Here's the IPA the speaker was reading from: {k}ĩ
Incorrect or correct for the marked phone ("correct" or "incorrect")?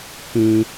correct